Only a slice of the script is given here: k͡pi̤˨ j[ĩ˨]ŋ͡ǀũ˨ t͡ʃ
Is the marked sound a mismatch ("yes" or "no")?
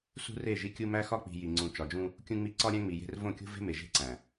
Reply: yes